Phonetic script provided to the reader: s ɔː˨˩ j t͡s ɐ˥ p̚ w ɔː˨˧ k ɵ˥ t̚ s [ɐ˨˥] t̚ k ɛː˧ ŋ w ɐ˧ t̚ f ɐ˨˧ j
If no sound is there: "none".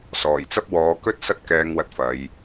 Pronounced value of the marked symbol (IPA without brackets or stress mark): ɐ˥